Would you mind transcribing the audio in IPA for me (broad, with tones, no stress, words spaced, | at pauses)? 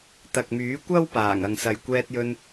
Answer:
t̪ɐ˨k̚myː˨˥kʷɐ˥w paː˨˩ŋ ɐ˨ŋsɐ˨jkʷɛː˧t̚ jɵ˧n